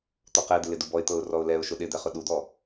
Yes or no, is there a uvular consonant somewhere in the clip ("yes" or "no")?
yes